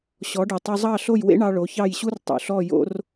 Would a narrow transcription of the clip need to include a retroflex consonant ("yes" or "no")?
yes